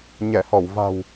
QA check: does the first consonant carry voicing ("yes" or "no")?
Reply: yes